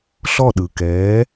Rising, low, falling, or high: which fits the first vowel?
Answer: falling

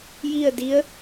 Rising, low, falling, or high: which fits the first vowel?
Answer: falling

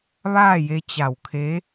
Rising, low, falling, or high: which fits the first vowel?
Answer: falling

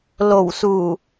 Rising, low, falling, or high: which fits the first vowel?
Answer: low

